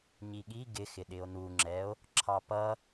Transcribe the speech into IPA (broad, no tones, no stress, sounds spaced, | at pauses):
ɲ i ɠ i ɡ ɪ x ɪ ɗ ɪ o̯ n u ŋ͡ǁ ɛ o̯ | ǁʰ ɑ p ʌ